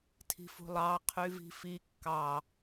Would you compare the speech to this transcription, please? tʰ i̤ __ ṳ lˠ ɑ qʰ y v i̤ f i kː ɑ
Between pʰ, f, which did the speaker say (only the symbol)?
f